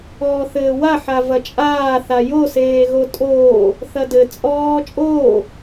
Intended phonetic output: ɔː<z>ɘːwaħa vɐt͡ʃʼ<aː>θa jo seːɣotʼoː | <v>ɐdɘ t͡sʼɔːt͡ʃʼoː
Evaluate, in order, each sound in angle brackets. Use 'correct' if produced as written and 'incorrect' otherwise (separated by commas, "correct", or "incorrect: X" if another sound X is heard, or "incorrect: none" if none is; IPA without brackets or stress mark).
incorrect: θ, correct, incorrect: θ